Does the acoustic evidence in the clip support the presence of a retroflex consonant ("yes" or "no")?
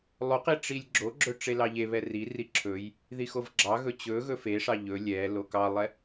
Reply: yes